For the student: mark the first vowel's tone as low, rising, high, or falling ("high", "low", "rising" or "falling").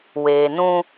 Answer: low